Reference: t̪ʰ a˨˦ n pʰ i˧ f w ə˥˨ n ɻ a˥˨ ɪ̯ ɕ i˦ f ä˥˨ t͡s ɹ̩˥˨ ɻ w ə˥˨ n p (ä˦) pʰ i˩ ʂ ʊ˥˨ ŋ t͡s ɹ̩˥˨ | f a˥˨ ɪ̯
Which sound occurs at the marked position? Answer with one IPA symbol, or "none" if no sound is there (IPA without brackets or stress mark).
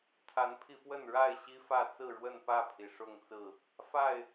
ä˥˨